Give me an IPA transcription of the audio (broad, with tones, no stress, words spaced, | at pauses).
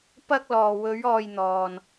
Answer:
pɐ˧k̚lɔː˨wɵ˨˧ɥ ɔː˧j n̪ɔː˨n